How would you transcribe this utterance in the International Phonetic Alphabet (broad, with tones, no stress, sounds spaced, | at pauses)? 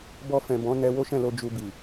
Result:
b ɔ˧ f ɛ̃˨ b ɔ̃˨˦ n ɛ˧ w o˦ ʃ ɛ̃˦˨ l o˧ d͡ʒ u˧ b i˨